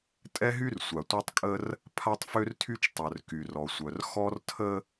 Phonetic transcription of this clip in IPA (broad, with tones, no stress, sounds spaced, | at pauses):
tʼ ɛ˦ ɦ y˦ r sʷ a˨ tʷ œ˦ tˤ kʼ ə˦ r | pʰ a˦ tˤ f ø˦ r tʰ y˦ t͡ʃ tˤ œ˨ r k y˨ r ɔ˨ sʷ œ˨ r x ɔ˦ r tʰ ə˦